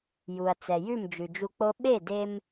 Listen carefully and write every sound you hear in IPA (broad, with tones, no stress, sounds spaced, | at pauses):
j u˩ ɐ̯ t͡s ɛ˩ j ʉ˥˩ m d͡ʒ ʉ˩ d͡ʒ u˧ k͡p o˥ ɓ e˥˩ d e˧ m